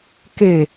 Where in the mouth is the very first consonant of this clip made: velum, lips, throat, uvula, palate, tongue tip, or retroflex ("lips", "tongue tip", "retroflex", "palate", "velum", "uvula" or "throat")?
velum